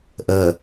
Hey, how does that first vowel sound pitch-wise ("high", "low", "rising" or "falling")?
low